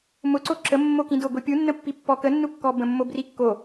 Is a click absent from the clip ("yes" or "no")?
no